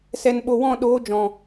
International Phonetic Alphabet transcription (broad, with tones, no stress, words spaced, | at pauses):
sɛ˨n ɓo˨wɔ̃˦˨ɗoː˨˦ d͡ʒɔ̃˨